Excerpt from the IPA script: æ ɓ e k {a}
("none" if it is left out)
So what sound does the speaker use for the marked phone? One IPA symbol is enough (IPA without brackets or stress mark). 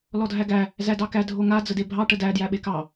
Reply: ɑ